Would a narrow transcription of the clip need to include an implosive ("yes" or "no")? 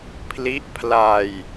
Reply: no